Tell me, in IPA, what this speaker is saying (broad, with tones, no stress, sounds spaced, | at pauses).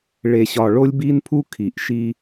ɭ e˨ ɕ ɒ˨ ɭ o˦ lʲ b i˦ n pʰ u˦ kʰ i˨ ʔ ʃ i˦